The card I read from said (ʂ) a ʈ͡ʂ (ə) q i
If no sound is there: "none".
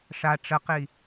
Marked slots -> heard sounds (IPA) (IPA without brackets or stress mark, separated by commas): ʂ, ə